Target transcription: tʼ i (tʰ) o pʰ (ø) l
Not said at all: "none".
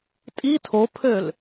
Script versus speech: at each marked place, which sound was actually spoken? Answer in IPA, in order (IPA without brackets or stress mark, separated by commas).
tʰ, ø